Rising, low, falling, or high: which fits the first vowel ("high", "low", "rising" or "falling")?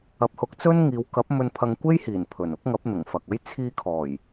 rising